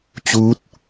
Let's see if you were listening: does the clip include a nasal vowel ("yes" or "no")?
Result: no